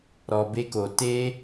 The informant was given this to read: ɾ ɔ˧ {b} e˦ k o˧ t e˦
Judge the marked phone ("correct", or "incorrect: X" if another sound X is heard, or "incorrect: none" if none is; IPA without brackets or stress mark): correct